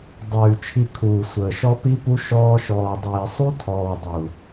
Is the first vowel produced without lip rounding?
no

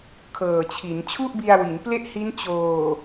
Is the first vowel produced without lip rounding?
yes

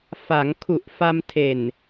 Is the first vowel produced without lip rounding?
yes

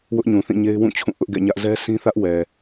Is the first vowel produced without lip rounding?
no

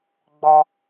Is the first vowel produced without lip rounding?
no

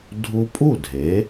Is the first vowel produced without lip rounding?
no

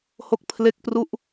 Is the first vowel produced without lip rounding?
no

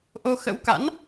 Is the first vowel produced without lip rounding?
no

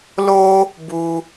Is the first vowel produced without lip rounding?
no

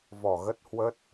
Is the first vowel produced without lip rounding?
no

